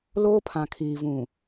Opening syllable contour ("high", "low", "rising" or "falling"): high